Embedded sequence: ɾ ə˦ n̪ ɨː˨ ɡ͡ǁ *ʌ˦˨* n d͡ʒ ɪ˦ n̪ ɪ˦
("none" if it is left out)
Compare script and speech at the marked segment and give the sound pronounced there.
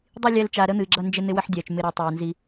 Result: ʌ˦˨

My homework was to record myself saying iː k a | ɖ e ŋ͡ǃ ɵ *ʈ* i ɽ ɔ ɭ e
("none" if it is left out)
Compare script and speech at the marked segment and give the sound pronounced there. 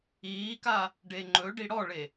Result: ɖ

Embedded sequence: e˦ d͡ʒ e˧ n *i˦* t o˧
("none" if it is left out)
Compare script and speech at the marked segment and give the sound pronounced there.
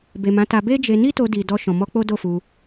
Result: i˦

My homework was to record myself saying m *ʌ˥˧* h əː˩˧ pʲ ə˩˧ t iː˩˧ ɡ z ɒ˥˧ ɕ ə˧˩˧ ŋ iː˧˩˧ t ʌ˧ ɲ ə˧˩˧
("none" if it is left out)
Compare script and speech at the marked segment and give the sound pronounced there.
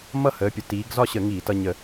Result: ʌ˥˧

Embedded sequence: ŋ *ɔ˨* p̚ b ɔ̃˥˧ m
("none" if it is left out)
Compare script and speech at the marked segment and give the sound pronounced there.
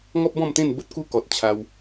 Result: ɔ˦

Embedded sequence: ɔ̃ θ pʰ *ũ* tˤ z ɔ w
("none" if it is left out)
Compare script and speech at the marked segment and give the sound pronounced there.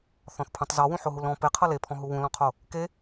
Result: ũ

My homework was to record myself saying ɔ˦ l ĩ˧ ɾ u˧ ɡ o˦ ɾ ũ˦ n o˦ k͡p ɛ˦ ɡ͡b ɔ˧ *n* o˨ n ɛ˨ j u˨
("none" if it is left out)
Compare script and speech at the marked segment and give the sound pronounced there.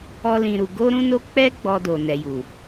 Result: d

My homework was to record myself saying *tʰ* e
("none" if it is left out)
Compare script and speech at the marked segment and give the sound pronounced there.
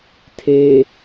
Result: tʰ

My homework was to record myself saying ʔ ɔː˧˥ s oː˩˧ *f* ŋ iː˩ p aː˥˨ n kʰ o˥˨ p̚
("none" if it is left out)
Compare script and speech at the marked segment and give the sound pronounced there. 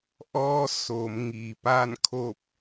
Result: m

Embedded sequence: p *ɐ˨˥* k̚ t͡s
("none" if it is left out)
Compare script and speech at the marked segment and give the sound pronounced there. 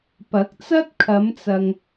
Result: ɐ˨˥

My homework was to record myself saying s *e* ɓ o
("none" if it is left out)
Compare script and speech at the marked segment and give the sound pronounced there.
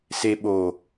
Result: e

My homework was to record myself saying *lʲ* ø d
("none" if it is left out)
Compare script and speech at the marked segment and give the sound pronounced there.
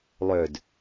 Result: lˠ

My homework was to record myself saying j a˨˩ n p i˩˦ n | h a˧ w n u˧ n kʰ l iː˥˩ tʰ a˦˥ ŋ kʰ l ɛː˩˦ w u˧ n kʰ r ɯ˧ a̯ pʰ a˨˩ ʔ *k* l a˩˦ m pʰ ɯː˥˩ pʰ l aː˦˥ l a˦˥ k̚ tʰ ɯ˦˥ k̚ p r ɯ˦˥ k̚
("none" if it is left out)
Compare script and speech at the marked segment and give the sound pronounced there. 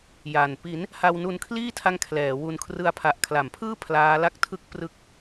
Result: kʰ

